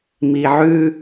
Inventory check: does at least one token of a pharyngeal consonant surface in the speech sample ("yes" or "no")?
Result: yes